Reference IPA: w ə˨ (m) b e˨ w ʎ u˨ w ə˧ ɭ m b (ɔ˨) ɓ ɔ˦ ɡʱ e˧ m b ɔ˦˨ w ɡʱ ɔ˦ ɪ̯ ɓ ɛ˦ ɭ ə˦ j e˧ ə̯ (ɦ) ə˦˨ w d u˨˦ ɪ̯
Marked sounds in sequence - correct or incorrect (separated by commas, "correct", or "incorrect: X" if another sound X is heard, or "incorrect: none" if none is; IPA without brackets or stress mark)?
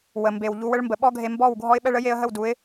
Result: correct, incorrect: ə˨, correct